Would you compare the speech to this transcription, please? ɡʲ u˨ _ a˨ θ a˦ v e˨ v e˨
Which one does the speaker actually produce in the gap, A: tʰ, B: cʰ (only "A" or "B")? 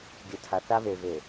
A